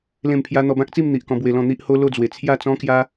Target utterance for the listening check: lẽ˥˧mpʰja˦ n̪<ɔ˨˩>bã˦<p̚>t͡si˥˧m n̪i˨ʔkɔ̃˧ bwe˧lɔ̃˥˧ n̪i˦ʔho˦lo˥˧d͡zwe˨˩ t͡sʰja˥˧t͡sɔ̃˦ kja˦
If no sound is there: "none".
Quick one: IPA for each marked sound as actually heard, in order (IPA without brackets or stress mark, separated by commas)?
ɔ˧, k̚